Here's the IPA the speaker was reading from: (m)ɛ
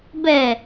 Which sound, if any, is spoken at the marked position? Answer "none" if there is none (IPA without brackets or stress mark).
b